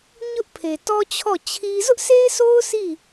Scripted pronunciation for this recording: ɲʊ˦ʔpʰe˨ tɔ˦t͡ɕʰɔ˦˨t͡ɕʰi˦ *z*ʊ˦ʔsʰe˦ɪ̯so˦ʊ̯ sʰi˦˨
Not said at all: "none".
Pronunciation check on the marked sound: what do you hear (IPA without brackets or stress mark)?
z